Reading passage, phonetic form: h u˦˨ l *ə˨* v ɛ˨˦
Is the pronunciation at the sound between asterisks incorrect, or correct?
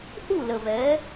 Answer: correct